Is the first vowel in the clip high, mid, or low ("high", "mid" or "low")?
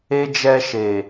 mid